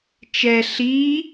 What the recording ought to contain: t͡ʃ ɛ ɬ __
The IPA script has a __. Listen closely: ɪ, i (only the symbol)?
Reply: i